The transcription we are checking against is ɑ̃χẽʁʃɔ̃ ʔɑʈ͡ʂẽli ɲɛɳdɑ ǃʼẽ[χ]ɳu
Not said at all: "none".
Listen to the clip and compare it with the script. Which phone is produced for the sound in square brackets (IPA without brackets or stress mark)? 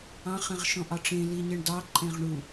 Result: ʁ